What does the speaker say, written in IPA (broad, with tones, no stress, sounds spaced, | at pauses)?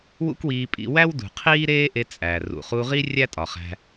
w ṵ˦ k w iː˧ pʼ ḭ˧ w æ˦ w d ṳ˨ qʰ iː˦ ɾ eː˦ ʔ e˧ t͡sʼ æ˨ r ṵ˨ χ u˧ ʁ i˦ rʲ æ˦ tʼ ɒ˨ χ æ̤˧